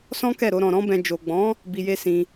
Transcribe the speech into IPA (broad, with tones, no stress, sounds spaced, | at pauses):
s ɔ̃˦ k ɛ˦˨ ɾ o˨˦ ɾ ɔ̃˧ ɾ ɔ̃˦ b ɛ̃˧ d͡ʒ o˨ ɡ͡b ɔ̃˨˦ | b i˧ j e˦ s ĩ˧